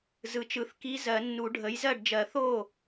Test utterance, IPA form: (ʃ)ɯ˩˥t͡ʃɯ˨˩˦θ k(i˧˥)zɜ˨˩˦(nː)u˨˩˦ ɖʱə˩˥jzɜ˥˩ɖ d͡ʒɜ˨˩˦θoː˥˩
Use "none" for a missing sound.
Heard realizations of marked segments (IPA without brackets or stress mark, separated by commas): z, i˧˥, nː